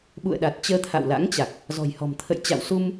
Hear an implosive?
yes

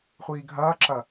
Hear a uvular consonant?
yes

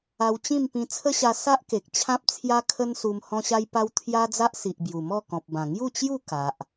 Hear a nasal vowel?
yes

